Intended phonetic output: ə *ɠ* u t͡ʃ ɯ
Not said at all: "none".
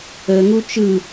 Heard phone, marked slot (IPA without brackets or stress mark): ŋ